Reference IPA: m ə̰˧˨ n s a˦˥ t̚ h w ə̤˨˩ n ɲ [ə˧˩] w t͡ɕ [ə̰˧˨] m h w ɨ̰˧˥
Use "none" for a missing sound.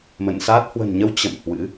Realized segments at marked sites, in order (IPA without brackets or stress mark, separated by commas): ə˨˦, ə̰˧˨